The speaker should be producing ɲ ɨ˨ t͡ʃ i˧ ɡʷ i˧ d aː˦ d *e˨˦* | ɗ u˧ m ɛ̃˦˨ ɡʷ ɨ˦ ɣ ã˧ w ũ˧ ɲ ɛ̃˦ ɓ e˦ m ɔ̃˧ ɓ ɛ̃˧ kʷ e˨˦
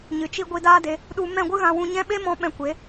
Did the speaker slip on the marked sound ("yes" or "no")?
yes